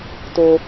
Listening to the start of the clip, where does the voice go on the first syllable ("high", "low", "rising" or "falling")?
low